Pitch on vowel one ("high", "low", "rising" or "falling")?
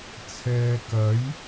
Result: low